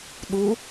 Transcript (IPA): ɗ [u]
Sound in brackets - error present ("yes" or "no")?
no